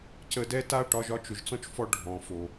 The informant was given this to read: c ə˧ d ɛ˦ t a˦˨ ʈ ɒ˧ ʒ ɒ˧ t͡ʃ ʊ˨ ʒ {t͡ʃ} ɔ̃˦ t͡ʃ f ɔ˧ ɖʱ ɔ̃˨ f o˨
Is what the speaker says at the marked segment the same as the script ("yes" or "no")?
no